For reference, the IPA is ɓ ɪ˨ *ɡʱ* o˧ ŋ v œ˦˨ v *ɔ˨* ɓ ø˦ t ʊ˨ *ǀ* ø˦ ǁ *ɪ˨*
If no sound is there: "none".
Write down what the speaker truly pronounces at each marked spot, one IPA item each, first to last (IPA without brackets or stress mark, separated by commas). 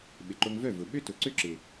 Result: ǃ, ʊ˨, ǀ, ɪ˨